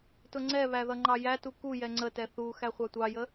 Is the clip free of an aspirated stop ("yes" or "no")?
yes